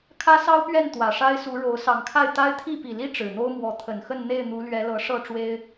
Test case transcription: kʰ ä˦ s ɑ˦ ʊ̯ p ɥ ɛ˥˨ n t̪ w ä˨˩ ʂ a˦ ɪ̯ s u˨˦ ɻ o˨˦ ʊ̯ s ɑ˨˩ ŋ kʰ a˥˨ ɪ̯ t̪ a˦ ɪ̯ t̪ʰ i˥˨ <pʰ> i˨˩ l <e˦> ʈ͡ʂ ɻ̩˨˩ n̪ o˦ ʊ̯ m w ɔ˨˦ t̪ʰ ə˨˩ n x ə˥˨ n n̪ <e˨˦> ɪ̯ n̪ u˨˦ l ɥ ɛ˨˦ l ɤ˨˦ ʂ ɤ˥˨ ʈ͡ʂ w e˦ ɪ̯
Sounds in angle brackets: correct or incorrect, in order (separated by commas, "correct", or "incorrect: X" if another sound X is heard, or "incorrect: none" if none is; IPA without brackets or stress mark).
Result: incorrect: p, incorrect: i˦, incorrect: e˥˨